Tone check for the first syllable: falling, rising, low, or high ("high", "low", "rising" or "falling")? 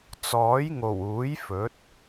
rising